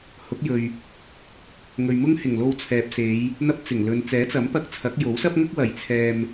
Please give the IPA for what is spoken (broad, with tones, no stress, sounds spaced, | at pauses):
h ʊ˨˥ k̚ j ɵ˨ ɥ | ŋ ɵ˨ ɥ m ʊ˥ ŋ h ɪ˨˩ ŋ l o˧ w t͡sʰ ɛː˨ p̚ s e˨˧ j | n̪ ɐ˥ p̚ t͡s ɪ˨˩ ŋ l ɵ˨ n t͡s ɛː˨˥ t͡s ɐ˨˥ m p ɐ˧ k̚ t͡sʰ ɐ˨˥ k̚ j o˨˥ w s ɐ˥ p̚ ŋ ɐ˥ k̚ w ɐ˨˩ j t͡sʰ ɛː˧ m